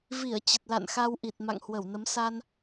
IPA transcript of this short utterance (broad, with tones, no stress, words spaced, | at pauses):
vi˧˩ə̯ t͡ɕə˨˩t̚la̰˧˨nxa˧wʔi˨˩t̚ ma̰˧˨ŋhwə˧˩wnə˨˦m sa˧n